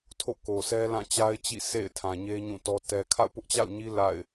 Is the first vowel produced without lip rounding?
no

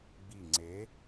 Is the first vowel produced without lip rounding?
yes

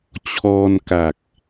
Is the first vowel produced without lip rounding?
no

